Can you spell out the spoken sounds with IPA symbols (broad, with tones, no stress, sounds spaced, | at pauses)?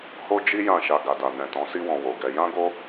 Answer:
h o˦ d͡ʒ i˦ j ã˦˨ ʃ a˧ ɡ a˨ d a˨ n ɛ̃˨ t ɔ̃˨˦ s i˦ w ɔ̃˧ w o˨ ɡ ɛ˧ j ã˦ ɡ o˦